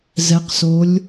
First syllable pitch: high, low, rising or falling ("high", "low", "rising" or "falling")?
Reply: rising